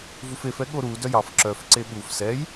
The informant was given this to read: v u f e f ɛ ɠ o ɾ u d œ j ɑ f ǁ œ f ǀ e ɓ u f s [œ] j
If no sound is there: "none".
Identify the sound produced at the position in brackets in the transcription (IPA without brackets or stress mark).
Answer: ɛ